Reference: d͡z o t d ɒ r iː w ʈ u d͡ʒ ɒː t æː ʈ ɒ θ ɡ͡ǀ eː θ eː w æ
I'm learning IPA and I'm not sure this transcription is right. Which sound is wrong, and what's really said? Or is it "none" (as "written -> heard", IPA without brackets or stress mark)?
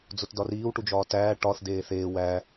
ɡ͡ǀ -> d